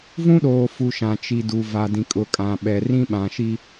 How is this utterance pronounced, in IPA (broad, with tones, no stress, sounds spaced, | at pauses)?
v ũ˦ ɗ oː˨ f u˨ ʃ ã˨ t͡ʃ i˨ d u˨ v a˨ d ĩ˨ kʼ ʊ˨ kʼ ã˨ ɓ ɛ˨ r ĩ˦ ɓ ã˨ ʃ i˦